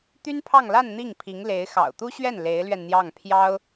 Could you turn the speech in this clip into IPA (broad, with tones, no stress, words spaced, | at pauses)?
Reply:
t̪y˥npʰɑ˥˧ŋ la˥˧n n̪i˥˩ŋ pʰi˧˥ŋle˧˥ɪ̯xɑ̰˨˩ʊ̯ t̪u˥ɕɥɛ˥˩n le˧˥ɪ̯lɥɛ˧nn̪jɑ˥˩ŋ pʰjɑ˥ʊ̯